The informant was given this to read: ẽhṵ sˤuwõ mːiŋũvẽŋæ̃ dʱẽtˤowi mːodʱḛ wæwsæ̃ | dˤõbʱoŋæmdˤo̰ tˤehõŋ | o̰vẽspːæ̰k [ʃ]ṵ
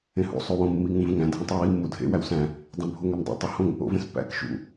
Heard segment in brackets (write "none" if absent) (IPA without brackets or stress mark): ʃ